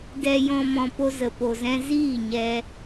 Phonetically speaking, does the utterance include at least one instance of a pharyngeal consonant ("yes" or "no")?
no